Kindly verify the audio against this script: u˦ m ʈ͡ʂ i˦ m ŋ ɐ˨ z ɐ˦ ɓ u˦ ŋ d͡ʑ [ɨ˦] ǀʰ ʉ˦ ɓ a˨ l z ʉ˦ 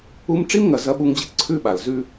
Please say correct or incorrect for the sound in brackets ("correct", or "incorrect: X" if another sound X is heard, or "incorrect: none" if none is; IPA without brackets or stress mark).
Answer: correct